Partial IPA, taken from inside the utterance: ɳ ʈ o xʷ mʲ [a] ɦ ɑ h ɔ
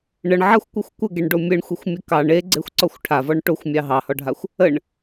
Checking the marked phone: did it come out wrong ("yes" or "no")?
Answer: yes